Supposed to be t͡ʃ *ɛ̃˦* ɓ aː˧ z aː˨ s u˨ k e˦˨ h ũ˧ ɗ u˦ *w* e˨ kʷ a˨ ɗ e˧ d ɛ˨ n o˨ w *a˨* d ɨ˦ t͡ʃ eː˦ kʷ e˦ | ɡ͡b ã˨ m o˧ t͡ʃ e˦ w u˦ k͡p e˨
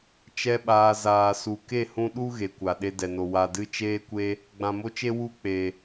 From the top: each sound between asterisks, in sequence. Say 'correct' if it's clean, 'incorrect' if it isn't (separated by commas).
incorrect, incorrect, correct